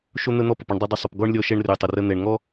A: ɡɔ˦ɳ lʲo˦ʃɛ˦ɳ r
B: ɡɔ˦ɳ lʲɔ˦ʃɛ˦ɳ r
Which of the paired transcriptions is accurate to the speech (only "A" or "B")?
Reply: B